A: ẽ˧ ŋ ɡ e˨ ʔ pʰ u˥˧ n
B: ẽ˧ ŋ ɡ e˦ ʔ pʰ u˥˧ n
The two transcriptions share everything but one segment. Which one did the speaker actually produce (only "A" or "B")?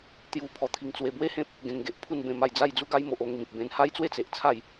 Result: A